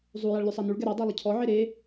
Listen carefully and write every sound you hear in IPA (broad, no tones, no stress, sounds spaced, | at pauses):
zˤ u j a ɭ lʲ u sˤ a n u ɭ ɡ ɛ ɾ a dˤ a lˠ ə cʰ ɔ ʕ e ɾ e